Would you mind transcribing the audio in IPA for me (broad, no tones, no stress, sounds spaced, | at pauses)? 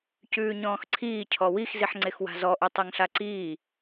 c ʉː ɲ ɔ̃ː x ǀʰ iː cʰ ɔ w i x z i ħ ŋ͡ǀ e x w a̤ z ɔ ʔ ʉ tˤ ɛ ŋ ɬ a ǀ iː